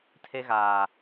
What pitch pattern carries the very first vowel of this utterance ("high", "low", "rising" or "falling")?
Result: high